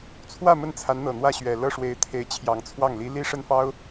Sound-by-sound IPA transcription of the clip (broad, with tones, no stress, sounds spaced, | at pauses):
t͡sʰ w ä˥˧ m ə˥˩ n t͡sʰ a˧˥ n n̪ ɤ˨˩ n̪ w ä˥˩ ɕ ɥ ɛ˨˩ l ɤ˥˩ ʂ w e˧˥ ɪ̯ t̪ʰ e˧˥ ɪ̯ t͡ɕʰ j ɑ˨˩ ŋ t͡sʰ w ɑ˥˩ ŋ l i˧˥ l i˥ ʂ ə˥˩ n f ɑ˥ ʊ̯